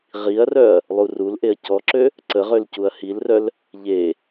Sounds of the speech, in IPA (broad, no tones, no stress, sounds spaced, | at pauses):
ʁ i ɐ̯ r œ ɐ̯ | lˠ u r u l ʔ e ɐ̯ c ɔ ǁ ø | ǀ ə ʁ ø l c u ɐ̯ h i l r œ l | ʎ e